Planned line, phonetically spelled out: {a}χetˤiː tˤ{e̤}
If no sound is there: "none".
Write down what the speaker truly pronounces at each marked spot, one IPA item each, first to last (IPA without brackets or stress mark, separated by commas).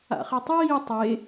a̰, e